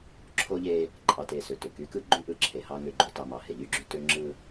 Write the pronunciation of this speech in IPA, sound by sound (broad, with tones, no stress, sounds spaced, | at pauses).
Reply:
ǁʰ o˦ ʎ e˦ | ǃʼ ɑ˨ t e˨ s ø˨ t ø˦˨ k y˦ k ɯ˦ ɡ͡ǃ y˦ ʔ ɯ˦ ǁʰ e˨ h ɑ˦ ŋ ø˨ ɡ͡ǃ o˨ t ɑ˨ m ɑ˨ h e˨ ʎ y˦ ɡ͡ǁ y˦ t ø˦ ŋ͡ǁ ɯ˦